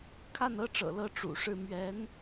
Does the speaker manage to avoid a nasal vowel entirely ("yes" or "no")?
yes